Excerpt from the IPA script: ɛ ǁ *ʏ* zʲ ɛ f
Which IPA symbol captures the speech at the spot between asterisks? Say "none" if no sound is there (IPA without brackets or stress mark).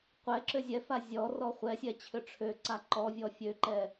ʏ